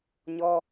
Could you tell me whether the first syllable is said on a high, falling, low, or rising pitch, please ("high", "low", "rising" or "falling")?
high